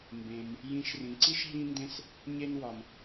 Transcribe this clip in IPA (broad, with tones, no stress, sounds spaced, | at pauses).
m b ẽ˩ m | j ĩ˨ ʃ r ĩ˩ ǀ i˥ ʃ ɦ ĩ˥ n d ẽ˥ s | ɲ e˦ n w ɒ˩ m